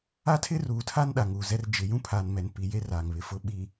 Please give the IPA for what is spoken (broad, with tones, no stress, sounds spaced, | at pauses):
a˦ tʰ ɪ˦ r uː˨ tʰ a˦ n ɗ a˨ ŋ uː˨ z ɛ˦ r d͡ʒ ɪ˨ j ũ˦ pʰ aː˨ n m ɛ˨ n p i˨ j e˦ r aː˨ ŋ β ɪ˨ f ʊ˦˨ ɓ i˨